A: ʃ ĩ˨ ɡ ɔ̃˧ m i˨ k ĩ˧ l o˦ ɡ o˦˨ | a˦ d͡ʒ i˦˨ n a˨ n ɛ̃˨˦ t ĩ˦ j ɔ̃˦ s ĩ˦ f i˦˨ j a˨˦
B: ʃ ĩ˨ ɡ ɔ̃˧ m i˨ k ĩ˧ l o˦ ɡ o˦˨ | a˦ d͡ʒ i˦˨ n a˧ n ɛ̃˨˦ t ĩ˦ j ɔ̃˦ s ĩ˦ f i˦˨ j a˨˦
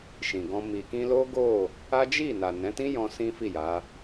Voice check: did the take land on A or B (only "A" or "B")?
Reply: A